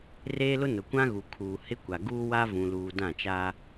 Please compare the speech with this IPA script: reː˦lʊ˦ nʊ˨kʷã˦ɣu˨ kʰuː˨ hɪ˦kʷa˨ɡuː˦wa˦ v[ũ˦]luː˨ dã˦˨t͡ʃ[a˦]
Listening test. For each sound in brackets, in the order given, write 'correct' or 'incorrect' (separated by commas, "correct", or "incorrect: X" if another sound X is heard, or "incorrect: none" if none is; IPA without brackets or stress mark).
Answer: incorrect: ũ˨, correct